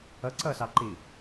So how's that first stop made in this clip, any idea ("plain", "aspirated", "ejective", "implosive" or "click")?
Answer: click